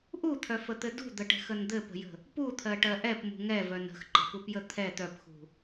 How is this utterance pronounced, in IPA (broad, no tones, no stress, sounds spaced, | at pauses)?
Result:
ʔ u t̪ʰ œ f ə t̪ ɘ d ṳ d̪ ə ʈ ɛ̤ x ə n d̪ ɘ p ə̤ j ə̤ | p u t̪ʰ ɜ ʈ ɜ ʔ ɛ p m ṳ ŋ ɛ v œ n ə̤ x ǃ ə̤ p u p j ə t̪ʰ ɛ t̪ œ p x ṳ